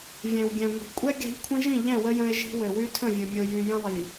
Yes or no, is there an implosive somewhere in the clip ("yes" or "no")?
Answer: no